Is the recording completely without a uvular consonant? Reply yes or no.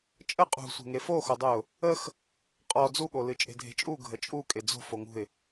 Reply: no